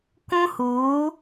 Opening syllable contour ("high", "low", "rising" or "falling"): high